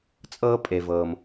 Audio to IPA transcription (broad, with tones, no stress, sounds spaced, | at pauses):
t͡sʼ ɤː˦ pʼ e˧ v ɤː˧ m